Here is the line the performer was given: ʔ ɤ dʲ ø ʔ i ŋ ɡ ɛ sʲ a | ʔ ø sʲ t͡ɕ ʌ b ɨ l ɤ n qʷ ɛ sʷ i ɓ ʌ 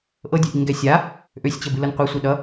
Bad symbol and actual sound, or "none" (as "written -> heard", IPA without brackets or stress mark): ɓ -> ɗ